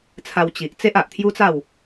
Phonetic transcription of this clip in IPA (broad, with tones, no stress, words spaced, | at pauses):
t͡sʰa˧wt͡ɕi˨ʔ t͡se˦ʔa˨ʔt̪ʰju˦t͡sa˥˧w